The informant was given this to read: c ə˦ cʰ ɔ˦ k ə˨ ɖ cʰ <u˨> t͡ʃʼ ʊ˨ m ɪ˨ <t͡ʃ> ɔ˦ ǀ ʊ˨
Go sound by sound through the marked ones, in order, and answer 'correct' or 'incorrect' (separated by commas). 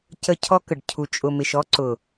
correct, incorrect